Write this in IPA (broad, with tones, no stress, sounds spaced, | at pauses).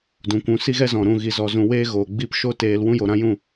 d ũ˨ kʷ ũ˨˦ s i˦ ɣ ɛ˦ z ɔ̃˨ ɾ ũ˦˨ ɣ i˧ z ɔ˧ z ũ˧ w eː˦ ɣ oː˨ ɡ͡b i˦ p ʃ o˦ t eː˧ l w ũ˦ j o˨ ɾ ã˦ j ũ˦˨